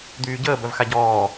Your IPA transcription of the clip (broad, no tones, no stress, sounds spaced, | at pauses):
d̪ yː ɟ əː b œ v x a ɟ ɔː